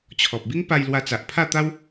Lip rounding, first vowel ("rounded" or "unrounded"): rounded